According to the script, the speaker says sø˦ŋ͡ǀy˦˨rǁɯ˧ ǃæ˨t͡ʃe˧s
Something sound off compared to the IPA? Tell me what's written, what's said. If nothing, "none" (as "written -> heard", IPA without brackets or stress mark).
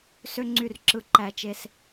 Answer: none